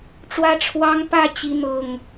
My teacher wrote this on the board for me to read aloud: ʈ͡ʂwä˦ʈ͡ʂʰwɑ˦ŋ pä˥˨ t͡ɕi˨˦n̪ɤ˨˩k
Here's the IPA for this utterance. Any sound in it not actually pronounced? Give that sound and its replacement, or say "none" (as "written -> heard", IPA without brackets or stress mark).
k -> ŋ